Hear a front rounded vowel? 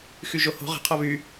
yes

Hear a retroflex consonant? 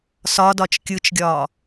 no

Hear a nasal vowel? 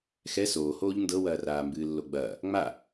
no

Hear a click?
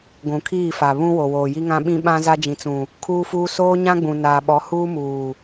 no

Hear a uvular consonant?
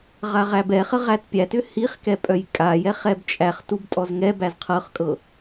yes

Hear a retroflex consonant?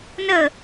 no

